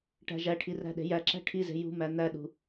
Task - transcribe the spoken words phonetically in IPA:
ʈ æ̤ ʒ æ ʈʰ i r æ̤ ɗ e̤ j æ ǁ æ̤ ʈʰ i z e̤ j ṳ m æ n̪ æ ɗ ṳ

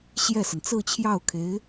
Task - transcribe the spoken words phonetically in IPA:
ɕ j ɛ˥˩ s ə˩ n t͡s ɹ̩˥˧ t͡ɕʰ j ɑ˥˩ ʊ̯ kʰ e˧˥ ɪ̯

